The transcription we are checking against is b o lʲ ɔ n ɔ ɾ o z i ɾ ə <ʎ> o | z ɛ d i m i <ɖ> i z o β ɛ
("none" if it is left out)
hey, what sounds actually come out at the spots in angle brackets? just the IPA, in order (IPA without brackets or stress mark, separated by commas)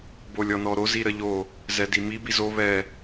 ʎ, b